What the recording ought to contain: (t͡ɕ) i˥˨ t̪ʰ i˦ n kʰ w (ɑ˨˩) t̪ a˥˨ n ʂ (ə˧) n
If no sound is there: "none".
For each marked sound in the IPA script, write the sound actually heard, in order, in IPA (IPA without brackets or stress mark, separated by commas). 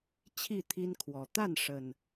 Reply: t͡ɕʰ, ɔ˨˩, ə˨˩